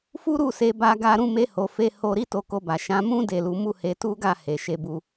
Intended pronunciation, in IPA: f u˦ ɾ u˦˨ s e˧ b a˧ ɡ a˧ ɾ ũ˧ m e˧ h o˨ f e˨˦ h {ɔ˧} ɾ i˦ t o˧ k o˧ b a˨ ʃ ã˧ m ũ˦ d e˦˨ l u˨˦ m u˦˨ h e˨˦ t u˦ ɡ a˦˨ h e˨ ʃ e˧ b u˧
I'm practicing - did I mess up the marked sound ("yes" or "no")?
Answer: yes